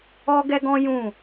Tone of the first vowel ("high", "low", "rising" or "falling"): high